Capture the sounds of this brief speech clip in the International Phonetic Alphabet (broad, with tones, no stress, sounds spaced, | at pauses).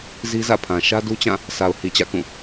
z i˦ z ä̰˦˨ pʰ ã˨ ʃ ä˦ d u˦ t͡ɕ ã˦˨ | s a˨ ʊ̯ h i˨ t͡ɕ ä̰˦˨ k ũ˦˨